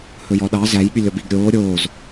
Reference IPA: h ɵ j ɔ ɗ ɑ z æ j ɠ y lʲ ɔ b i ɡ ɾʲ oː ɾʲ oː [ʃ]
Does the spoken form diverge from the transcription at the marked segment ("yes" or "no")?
yes